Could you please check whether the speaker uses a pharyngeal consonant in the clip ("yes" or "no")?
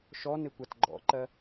no